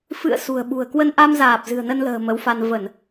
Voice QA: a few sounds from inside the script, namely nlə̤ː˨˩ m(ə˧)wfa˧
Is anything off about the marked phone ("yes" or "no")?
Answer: yes